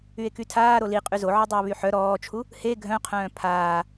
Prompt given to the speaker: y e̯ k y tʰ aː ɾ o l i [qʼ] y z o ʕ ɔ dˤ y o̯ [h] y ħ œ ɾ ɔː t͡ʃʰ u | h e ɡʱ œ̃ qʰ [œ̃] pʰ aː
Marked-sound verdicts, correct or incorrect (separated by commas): correct, incorrect, incorrect